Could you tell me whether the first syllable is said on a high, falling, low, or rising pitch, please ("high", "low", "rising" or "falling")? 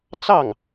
falling